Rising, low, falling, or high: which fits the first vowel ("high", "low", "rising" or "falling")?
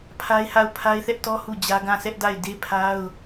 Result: high